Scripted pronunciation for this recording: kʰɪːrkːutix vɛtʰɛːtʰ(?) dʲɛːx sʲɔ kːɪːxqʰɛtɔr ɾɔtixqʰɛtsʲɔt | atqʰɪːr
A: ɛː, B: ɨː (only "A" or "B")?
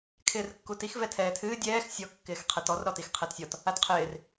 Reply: B